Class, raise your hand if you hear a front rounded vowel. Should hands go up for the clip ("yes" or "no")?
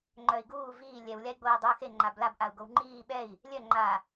yes